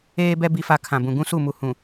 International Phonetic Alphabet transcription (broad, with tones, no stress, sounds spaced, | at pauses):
eː˦ b ɛ˦ b i˦ f a˦ kʰ ã˨ b ũ˨ ɡ ũ˦ s u˦˨ m u˨ h ũ˨